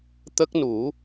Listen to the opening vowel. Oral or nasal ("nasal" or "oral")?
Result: oral